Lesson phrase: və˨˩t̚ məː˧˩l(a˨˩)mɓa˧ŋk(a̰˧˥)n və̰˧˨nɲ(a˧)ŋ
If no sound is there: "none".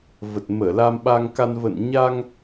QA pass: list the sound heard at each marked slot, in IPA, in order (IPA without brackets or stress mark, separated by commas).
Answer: a˧, a˧, a˧